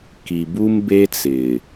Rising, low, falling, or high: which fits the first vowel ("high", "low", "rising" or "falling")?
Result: low